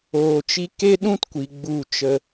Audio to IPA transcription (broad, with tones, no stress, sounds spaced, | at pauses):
oː˨ t͡ʃ i˧ k e˦ ɗ ũ˦ t kʷ i˨ ɡ͡b u˦˨ t͡ʃ ə˧